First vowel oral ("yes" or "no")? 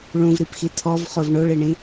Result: no